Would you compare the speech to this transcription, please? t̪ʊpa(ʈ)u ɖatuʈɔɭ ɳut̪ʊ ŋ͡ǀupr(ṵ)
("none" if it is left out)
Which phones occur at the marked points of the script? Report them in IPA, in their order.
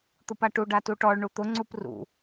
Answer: ʈ, ṵ

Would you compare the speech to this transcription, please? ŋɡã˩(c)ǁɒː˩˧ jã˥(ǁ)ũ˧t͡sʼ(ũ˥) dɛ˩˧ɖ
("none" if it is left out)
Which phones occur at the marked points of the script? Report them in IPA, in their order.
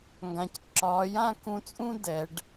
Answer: c, k, ũ˥

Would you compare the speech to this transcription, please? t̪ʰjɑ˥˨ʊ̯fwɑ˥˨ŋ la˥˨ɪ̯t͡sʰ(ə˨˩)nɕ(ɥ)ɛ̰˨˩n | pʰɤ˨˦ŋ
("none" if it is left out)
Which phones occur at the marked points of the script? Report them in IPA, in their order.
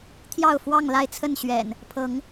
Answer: ə˥˨, ɥ

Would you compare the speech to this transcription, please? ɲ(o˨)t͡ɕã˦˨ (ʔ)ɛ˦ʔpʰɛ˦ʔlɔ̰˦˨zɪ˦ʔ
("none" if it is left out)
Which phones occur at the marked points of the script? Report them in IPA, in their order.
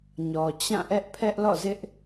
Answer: ɔ˨, ʔ

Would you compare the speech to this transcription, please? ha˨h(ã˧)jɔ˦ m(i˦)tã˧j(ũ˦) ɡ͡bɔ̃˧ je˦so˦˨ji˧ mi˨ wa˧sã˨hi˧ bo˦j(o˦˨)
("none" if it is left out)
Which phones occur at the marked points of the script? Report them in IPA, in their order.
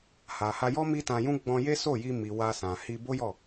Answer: a˧, i˦, ũ˦, ɔ˦˨

